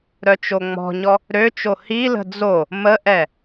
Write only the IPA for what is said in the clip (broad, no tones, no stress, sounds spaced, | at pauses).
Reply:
ɾ œ t͡ʃ o ŋ͡m ɔ̤ ɲ ɔ | ɾ ø t͡ʃ o h i l ə̤ d͡z o | m ə ʔ ɛ